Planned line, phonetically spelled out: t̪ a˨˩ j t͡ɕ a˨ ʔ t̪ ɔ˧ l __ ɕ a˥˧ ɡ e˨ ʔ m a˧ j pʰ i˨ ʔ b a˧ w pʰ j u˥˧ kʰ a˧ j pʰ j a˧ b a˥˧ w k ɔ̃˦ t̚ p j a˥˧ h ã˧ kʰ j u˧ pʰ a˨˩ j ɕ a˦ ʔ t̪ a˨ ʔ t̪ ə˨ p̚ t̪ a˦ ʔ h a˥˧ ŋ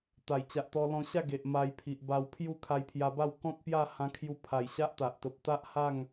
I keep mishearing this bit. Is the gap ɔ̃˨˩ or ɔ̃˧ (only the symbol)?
ɔ̃˧